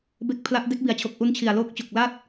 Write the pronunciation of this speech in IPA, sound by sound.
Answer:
b e˦˥ k̚ pʰ l a˦˥ ʔ d e˦˥ k̚ b i˩˦ a̯ t͡ɕʰ o˨˩ k̚ ʔ u˦˥ n t͡ɕʰ i˨˩ a̯ l oː˦˥ k̚ t͡ɕ o˨˩ k̚ l a˥˩ t̚

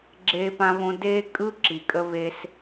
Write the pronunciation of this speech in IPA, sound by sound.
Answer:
ɡ͡ǁ eː˥ p ã˥ β õ˥ d eː˥ kʼ ɯ˥ ǁ i˩ kʼ ə˥ β e˥ s

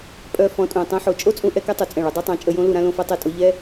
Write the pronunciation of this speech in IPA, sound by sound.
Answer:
pʼ œ˧ f ɔ̃˨˦ tʼ ũ˨ tˤ ɛ̃˦ ħ o˧ t͡ʃʼ o˦ t͡sʼ ũ˧ ʔ ɛ˧ k ɛ˦ tˤ u˨ t͡sʼ ɛ̃˦˨ ɭ u˧ dˤ ø˦ tˤ ã˨˦ t͡ʃʼ ə˧ j õ˦ l u˧ ɾ ã˧ l õ˧ f ɛ˧ tˤ e˦˨ tʼ o˦ ʎ ɛ˦

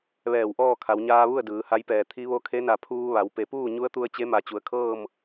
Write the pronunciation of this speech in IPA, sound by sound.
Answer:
ʋ ɛː˧˩ w ʔ ɔː˥˨ kʰ a˩˧ w ɲ aː˧ ʋ u˥˨ ə̯ d ɯː˩˧ h a˧˥ j p ɛː˧˩ t̪ʰ i˧˥ ʋ o˧˥ kʰ e˧˥ n a˧˩ pʰ uː˧ ʋ a˩˧ w p e˩˧ p uː˥˨ ɲ u˧˥ ə̯ t̪ u˧ ə̯ t͡ɕ e˧˥ m a˧˩ t͡ɕ u˩˧ ə̯ kʰ ɤː˥˨ m

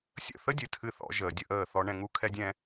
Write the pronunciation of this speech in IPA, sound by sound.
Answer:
sʲ ə̰˦˨ θ ə˦ dʲ ɨ˨ tʰ ɨ˧ θ ɔ̰˧ ʒ əː˨ dʲ ə˧ ʔ əː˦˨ θ ɔ˧ ɳ ɛ̃˧ ŋ u˧ kʰ ɛ˦ dʲ ɛ̃˦

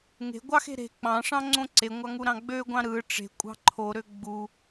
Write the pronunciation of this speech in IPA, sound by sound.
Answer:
ŋ e̤ ɡʷ ɑ x e̤ ɾ e̤ k͡p ɑ̃ ʂ ɑ̃ ŋ͡ǀ õ ǀ e ŋʷ ɑ ŋ u ɾ ɑ̃ ɡ͡b ø ɡʷ ɑ̃ ɾ ɯ ʈ͡ʂ e̤ kʷʼ ɑ̤ ǃʰ o ɾ ø ɡ͡b u

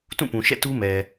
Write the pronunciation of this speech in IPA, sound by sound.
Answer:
t ũ˦˨ p ũ˨ ʃ ɛ̰˦˨ t u˦ m ɛ˨

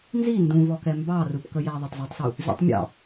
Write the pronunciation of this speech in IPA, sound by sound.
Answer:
n z i n d ũ v ɔ k ɛ m b ɑ r ɯ p k ə j æ ðˤ ɑ tˤ z æ tˤ s u | z ḭ tˤ mʲ ɑ̰

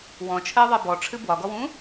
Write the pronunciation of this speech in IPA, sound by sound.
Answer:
w ɔ̃ t͡ʃʰ ɜ ðˤ ɜ b ɔ ʈ͡ʂʰ ɨ b w ɒ ɡ ɔ w ũ

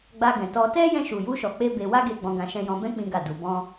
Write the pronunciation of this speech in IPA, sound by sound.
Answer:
ɡ͡b a˧ ɡ ɛ̃˨ t ɔ˧ t ɛ˦ j ɛ̃˧ ʃ u˨ j u˧ ʃ ɔ˨ k͡p e˧ b e˧ w a˦ ɡ e˧ ɡ͡b ɔ̃˧ ɡ ã˧ ʃ ɛ̃˧ j ɔ̃˧ b ɛ̃˦ k͡p ĩ˦ ɡ a˦˨ d u˧ b ɔ̃˦

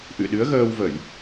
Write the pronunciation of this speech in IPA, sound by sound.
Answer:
ʔ ɨ̰˧˨ ɗ ɨ˨˦ ə̯ ɣ əː˧ w v ə˧˩˨ j

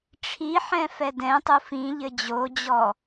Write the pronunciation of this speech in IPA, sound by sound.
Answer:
ʈ͡ʂʰ i ħ ɛ̃ f ɛ d ɛ̃ tˤ u f ĩ ʎ ɘ d͡ʑ o d͡ʑ ɔ

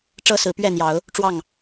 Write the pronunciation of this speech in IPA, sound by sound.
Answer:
ʈ͡ʂ ɤ˦ s ɹ̩˨˦ p ɥ ɛ˥˨ n̪ j ɑ˨˦ ʊ̯ | ʈ͡ʂ w ɑ˥˨ ŋ

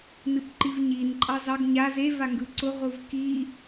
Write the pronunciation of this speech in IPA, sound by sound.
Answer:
n ɨ p ǃ i v ɲ i n ǃʼ ɑ z ɑ ɡ ɲ a z e v a ŋ ɡ ɯ ǀ ʊ ʁʷ ɯ v k i

